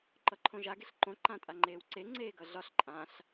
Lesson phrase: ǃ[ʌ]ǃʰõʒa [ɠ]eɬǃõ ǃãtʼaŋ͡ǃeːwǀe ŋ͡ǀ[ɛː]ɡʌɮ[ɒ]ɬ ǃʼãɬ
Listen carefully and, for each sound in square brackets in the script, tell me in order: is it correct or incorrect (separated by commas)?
correct, incorrect, incorrect, correct